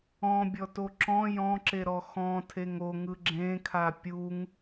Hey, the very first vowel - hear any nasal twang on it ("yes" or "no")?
yes